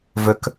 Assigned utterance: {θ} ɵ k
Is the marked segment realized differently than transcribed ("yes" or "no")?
yes